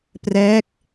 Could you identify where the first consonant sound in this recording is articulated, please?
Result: labial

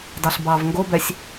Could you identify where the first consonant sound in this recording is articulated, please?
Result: alveolar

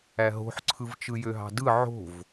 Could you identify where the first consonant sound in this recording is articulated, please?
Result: glottal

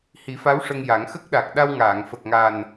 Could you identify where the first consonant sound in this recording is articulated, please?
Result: glottal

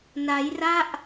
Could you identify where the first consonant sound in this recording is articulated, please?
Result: alveolar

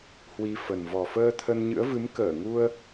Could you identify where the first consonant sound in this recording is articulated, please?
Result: glottal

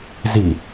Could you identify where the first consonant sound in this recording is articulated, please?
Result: alveolar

